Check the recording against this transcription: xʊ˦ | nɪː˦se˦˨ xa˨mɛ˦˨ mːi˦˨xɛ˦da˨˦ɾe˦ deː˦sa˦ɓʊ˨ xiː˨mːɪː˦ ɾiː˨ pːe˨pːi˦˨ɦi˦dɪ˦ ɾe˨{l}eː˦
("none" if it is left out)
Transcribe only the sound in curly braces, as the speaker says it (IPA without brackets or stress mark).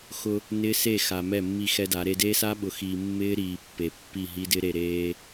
ɾ